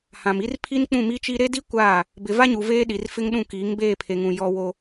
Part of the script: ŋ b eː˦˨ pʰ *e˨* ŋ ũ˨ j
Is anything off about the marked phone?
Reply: no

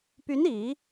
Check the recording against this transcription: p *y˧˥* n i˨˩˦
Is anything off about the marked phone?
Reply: no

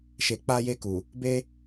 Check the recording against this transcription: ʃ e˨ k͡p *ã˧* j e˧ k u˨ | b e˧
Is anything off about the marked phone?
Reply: yes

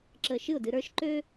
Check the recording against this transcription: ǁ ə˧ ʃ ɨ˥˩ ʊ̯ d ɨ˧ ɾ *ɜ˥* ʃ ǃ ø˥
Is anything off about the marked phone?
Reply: yes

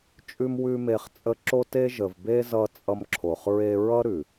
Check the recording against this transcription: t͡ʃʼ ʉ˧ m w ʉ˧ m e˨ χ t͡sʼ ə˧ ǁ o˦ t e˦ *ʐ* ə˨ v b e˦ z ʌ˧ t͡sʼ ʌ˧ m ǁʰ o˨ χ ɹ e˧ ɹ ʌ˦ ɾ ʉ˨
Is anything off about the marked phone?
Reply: yes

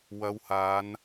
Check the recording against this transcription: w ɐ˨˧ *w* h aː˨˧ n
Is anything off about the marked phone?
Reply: no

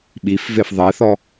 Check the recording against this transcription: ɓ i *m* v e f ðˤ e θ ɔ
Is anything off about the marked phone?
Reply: yes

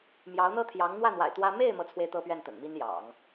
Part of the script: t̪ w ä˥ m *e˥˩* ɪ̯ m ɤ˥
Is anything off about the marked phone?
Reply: no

